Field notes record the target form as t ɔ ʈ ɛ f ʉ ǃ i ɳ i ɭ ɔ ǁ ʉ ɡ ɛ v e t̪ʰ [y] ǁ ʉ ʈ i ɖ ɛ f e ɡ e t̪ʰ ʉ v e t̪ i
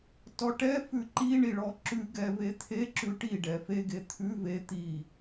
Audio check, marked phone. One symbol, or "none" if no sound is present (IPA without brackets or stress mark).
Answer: e